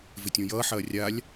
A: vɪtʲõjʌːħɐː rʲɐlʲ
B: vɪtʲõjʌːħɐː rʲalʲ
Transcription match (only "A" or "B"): B